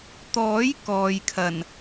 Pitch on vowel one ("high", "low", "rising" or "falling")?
rising